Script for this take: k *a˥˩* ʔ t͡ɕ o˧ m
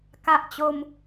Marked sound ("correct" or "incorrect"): incorrect